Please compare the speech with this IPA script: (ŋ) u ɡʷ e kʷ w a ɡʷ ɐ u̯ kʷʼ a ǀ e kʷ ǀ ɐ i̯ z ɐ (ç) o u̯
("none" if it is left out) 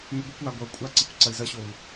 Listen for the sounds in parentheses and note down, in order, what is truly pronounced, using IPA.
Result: n, ɕ

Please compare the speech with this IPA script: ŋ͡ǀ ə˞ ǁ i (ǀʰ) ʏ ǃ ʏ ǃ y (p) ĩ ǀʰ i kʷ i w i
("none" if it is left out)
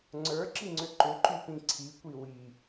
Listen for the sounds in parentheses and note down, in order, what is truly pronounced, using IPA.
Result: ŋ͡ǀ, p

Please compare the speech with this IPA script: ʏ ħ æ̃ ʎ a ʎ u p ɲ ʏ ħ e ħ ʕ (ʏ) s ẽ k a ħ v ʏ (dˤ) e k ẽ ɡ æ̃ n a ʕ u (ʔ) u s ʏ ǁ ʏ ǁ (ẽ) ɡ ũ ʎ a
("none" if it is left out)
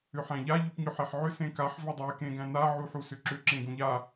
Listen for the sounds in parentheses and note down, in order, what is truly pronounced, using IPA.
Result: ʏ, dˤ, ħ, ẽ

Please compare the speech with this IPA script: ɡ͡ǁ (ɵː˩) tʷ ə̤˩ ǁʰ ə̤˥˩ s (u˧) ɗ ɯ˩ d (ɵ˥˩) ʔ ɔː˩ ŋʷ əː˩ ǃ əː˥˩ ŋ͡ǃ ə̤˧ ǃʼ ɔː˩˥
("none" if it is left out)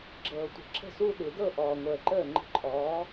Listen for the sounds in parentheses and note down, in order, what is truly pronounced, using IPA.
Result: ɤː˩, u˧, ɤ˥˩

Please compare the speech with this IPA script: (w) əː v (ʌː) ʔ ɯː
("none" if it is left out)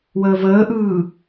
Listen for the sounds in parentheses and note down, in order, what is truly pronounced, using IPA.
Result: w, əː

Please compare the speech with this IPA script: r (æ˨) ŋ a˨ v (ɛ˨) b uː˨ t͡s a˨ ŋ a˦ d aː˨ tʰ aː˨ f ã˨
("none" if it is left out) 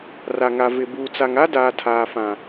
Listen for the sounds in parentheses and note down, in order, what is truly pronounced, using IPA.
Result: a˨, ɪ˨

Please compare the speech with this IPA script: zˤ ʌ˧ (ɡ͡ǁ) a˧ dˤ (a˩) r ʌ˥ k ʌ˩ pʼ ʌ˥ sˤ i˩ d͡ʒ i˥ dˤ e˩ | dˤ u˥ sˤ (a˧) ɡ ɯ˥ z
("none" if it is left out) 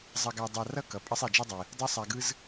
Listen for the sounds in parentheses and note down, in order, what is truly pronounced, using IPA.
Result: ɡ, a˧, a˧

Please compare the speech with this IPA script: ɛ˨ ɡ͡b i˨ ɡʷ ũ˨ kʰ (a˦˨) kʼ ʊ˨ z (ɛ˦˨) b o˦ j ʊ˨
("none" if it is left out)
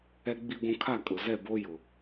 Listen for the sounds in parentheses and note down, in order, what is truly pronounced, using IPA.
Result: a˦˨, ɛ˦˨

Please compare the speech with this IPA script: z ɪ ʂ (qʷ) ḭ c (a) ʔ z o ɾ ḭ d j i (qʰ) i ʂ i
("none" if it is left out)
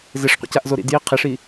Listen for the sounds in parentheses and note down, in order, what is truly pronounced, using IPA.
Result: qʷ, a, qʰ

